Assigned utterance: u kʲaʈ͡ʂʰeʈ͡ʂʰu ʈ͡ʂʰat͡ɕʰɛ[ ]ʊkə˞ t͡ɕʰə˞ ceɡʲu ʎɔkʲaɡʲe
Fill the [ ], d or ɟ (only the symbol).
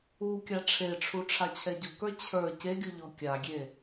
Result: ɟ